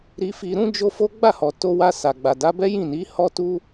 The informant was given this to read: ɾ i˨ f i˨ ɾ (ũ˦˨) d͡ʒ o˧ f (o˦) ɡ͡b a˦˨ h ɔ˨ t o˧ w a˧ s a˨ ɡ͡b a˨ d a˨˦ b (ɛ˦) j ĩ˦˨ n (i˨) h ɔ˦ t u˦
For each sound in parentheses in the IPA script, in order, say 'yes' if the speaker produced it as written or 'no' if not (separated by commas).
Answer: no, yes, yes, no